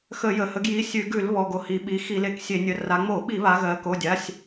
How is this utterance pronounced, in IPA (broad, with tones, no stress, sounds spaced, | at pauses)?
x ə˧˩˧ j ə˩˧ h ə˩˧ ɡ j i˩˧˩ sʲ ʉ˧˩˧ ɡ ʉ˧˩˧ l β ɔ˩˧˩ ɡ o˩˧ h i˩˧ ɓ i˩˧˩ x i˧˩˧ l e˩˧ k sʲ e˧˩˧ nʲ ə˩˧˩ r a˩˧ ŋ͡m o˧˩˧ ɓ i˧˩˧ β a˩˧ ɣ ɜ˩˧ k o˩˧˩ dʲ a˩˧˩ sʲ